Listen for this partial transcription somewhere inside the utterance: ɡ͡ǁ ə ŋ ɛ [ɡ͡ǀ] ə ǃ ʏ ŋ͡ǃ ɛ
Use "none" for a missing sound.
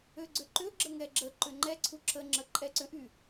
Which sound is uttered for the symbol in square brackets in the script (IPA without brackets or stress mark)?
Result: ɡ͡ǁ